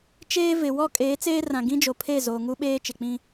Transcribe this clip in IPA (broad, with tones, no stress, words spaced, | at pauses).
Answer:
t͡ʃeː˦ vɪ˨ wɔ˦ kʼeː˨˦t͡seː˦rã˨ ɡĩ˦d͡ʒo˨pʰe˦˨ zoː˨ŋu˦ɓeː˦ t͡ʃɪ˨k͡pĩ˦